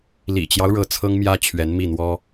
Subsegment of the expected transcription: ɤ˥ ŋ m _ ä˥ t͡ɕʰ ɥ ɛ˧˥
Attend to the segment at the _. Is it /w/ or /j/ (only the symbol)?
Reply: j